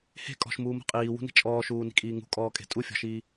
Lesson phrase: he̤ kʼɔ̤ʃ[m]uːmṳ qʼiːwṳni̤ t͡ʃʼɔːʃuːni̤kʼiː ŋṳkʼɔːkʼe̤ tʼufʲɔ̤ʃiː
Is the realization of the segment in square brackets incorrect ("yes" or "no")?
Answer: no